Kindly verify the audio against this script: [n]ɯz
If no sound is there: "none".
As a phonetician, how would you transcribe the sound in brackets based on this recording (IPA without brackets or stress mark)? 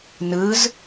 n